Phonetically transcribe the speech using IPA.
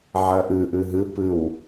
ʕ ʌ ʔ ɯ ʔ ɯ ɦ ɯ p ɯ w

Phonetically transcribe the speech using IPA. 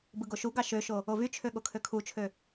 b ɯ ɡ o ʃ u ɡ ɑ ʃ ø ʃ o | o v y t͡ʃʰ ø ɠ o kʰ ø kʰ u t͡ʃʰ ø

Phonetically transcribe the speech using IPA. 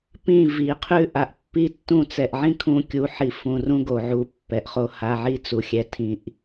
p ĩ˦˨ v i˨ qʰ ʉ˦ ʔ a˨ ʔ pː i˦ tː ũ˦˨ t͡s ɛ˨ ʔ ʕ ĩ˦ kʰ ũ˧ kʲ u˨˦ ħ i˧ f ũ˧ r ũ˦ ɡ o˨ ʕ u˧ pː ɛ˨ ʔ χ o˧ h a˧ ʕ i˦ t͡s u˨ xʲ ɛ˧ tʰ ĩ˧ ʔ

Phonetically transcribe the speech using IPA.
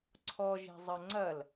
ǀʰ ɔ ʒ e̤ zˤ ɐ ŋ͡ǀ ɐ l

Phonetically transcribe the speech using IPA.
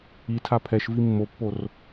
i tʰ a pʰ ɛ ʃ v i mː o pː o r

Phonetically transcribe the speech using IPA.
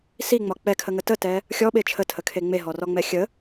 s i ŋ͡m ɒ k͡p ɛ kʰ ə ŋ ə t ə t ɛ | xʲ ɔ ɓ e t͡ʃʰ ə tʰ ə kʰ e ŋ͡m e ɦ ɔ r ɔ ŋ͡m ɛ xʲ ə

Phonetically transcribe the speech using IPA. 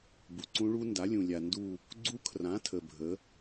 b u˨ ǀ ũ˦˥ ɭ u˦˥ n d a˨˥ lʲ ũ˨ lʲ a˨ n d u˥˧ | ɡ͡ǀ u˦˥ kʰ r ã˨˥ tʰ ə˨ bʱ ə˨˥

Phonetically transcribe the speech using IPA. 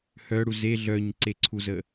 h œ ɽ u z e ɮ œ ɲ ǀ e ǀʰ u z ə

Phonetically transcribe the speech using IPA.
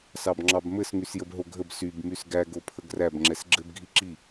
s ɑ b ŋ͡ǁ ɑ b m ɘ s ŋ y s j ə b ɦ o ɡʱ ə b s y b m y s ɡ æ ɡ o pʰ ə ɡ r æ b ŋ͡ǁ ɛ s ɡ͡ǁ ɘ b ɡʱ i ǁ i

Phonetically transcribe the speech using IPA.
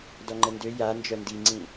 d ɔ ŋ͡ǃ ə n d ø j a n d͡ʒ œ n d i ŋ͡ǀ ĩ

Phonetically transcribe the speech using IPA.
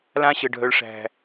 l ã˦ ɕ ə˨ ɖʱ œ˨ ɭ ʂ æ̤˨

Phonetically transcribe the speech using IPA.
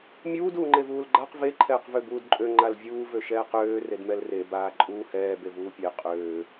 mʲ uː d uː ŋ͡ǃ e v uː l ɡ͡ǃ a q v e ǃʰ ɛː q v ø b uː d ǃʼ ø ŋ͡ǃ a l vʲ uː v ø ʃ ɛː q øː r e d m ɛ l r e b aː ǃʼ uː h ɛː b e v uː pʲ e qʼ øː

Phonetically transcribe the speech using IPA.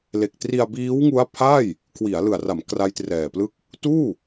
l e˨˩ k̚ t r i˧ a̯ b iː˦˥ w ŋ u˦˥ a̯ pʰ a˥˩ j | kʰ w i˩˦ a̯ l ɯ˨˩ a̯ r a˩˦ m k r a˦˥ j t r ɛː˨˩ p l ɯ˥˩ k̚ | t uː˥˩

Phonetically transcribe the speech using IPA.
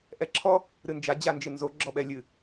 ʔ ɛ ǁʰ ɔ | ɾ ɨ n d͡ʒ a d͡ʑ a n d͡ʒ ɨ n z o ɡ͡ǁ ɔ ɓ ɛ lʲ ɨ

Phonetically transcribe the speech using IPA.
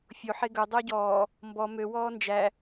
fʲ o ħ e ɡ ɵ dˤ ø ɟ ɔː | m b ɔ m ø w ɔː n d͡ʒ æ

